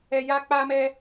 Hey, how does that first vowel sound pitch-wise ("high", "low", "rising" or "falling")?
high